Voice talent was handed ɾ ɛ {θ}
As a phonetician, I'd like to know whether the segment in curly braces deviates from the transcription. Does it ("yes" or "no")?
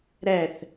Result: no